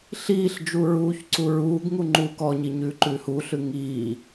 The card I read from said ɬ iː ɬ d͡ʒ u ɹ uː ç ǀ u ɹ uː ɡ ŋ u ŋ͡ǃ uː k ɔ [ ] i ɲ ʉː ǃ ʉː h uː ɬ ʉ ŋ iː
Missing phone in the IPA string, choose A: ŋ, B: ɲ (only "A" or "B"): B